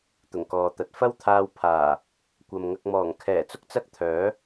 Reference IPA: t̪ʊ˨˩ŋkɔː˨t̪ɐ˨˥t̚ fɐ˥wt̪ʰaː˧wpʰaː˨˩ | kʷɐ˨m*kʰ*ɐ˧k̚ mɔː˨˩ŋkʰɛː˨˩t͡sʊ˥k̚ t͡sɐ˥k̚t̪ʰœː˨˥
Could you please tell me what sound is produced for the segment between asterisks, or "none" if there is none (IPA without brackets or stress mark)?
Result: ŋ